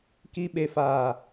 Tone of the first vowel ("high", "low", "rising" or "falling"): low